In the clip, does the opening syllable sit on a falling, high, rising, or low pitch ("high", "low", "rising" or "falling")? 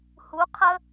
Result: rising